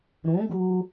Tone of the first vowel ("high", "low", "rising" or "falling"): rising